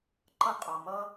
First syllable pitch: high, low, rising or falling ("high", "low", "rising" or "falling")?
high